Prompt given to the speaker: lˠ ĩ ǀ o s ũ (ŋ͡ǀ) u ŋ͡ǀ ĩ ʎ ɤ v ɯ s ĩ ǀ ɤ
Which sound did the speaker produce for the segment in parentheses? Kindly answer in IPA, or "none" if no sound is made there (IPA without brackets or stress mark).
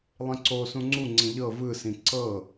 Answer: ŋ͡ǀ